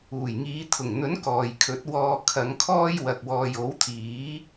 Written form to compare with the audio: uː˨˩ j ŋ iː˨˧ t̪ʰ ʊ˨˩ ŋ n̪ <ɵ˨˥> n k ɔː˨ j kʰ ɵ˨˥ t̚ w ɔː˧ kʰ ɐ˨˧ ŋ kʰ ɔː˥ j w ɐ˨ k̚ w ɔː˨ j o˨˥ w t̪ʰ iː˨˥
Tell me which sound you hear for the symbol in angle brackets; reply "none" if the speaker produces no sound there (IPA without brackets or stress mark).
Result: ɵ˨˥